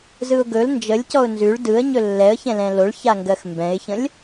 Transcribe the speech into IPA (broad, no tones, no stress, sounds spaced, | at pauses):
z ɯ ʊ̯ ɡ ɵ l n d͡ʒ ə lʲ c ɔ ʊ̯ n z ʉ ɭ d ɯ ə̯ ɲ ɵ lː ɛ ə̯ ç ɛ̃ l ɛ̃ l o ɭ ç a ŋ ɡ ɜ x m b ɛ̃ ɪ̯ ç ə̃ lʲ